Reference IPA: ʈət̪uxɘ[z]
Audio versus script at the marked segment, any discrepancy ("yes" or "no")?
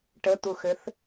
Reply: yes